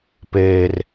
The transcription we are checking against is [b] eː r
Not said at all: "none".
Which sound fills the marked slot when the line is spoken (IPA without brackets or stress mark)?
p